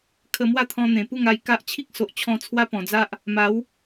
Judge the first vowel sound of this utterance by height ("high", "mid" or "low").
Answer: mid